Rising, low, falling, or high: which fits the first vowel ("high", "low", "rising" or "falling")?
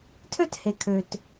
falling